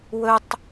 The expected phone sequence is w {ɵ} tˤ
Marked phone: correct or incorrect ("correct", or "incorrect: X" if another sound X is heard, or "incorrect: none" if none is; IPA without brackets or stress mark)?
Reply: correct